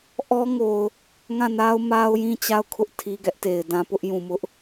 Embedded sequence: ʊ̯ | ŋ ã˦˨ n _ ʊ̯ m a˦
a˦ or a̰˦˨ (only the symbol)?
a˦